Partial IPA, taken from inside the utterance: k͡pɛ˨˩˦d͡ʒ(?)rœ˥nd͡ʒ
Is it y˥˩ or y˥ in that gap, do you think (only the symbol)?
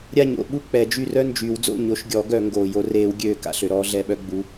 y˥˩